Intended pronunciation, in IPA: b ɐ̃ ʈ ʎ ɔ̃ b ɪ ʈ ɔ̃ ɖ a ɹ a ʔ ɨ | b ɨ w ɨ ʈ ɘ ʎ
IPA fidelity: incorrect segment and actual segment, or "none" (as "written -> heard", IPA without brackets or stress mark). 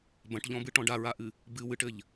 ɪ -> ɨ